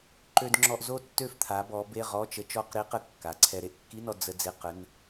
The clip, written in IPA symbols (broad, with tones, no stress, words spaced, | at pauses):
ǃø˧dŋ͡ǁɔ˧ʔzo˥˨tːø˥˨f t̪ʰa˩˧bɔ˩˧ be˧˥˧ʁɔ˧˥˧t͡ʃə˧˥ t͡ʃɔ˧˥˧qɾi˧˥qə˧ kːa˩˧ǀʰɛ˧ ɾe˧ʔkːi˧˥˧nɔ˧ d͡zə˧ d͡ze˧˥˧qə˧˥˧n